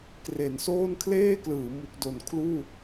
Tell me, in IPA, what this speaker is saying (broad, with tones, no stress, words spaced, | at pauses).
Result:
kre˩˦nsoː˥˩n kʰleː˥˩klɯː˩˦ mu˨˩k̚do˨˩nkʰluː˥˩